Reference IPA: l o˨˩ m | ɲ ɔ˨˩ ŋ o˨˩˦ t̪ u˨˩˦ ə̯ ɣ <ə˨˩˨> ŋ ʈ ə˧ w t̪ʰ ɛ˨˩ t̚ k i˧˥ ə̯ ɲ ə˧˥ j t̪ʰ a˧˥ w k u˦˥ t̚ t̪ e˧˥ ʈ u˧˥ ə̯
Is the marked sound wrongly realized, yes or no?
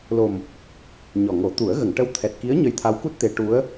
no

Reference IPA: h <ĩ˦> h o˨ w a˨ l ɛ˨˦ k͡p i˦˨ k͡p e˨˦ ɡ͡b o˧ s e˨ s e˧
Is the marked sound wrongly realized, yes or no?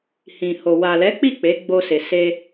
yes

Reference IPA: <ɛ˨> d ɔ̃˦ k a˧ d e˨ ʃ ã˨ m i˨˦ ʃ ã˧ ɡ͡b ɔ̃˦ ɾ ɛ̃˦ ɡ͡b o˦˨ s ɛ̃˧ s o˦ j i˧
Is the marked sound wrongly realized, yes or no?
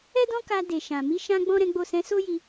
yes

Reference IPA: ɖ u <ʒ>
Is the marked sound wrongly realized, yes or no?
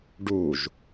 no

